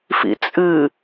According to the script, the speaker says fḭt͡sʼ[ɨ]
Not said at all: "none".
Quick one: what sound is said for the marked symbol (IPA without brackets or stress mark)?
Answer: ɨ